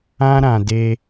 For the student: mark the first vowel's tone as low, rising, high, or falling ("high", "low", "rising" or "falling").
high